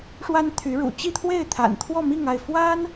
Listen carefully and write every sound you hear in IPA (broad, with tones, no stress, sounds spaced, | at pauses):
ʂ w a˥ n t̪ʰ y˧˥ ɻ ṵ˨˩ t͡ɕ i˥˧ t̪ʰ w e˥˩ ɪ̯ t̪ʰ a̰˨˩ n t̪ʰ w ɔ˥˧ m i˥˧ ŋ a˥˩ ɪ̯ f w a˥ n